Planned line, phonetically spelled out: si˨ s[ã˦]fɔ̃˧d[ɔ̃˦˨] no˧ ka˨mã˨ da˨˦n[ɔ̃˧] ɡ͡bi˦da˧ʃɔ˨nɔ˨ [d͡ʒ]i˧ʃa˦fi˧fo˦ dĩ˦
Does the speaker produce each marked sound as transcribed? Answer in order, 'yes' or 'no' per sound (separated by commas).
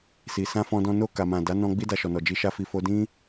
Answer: no, no, yes, yes